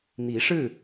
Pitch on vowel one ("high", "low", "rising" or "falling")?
rising